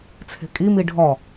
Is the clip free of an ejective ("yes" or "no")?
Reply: no